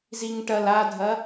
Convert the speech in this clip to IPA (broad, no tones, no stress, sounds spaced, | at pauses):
z i ŋ ʈ ɐ l a dʱ ɐ